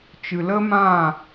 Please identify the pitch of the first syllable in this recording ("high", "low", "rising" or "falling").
low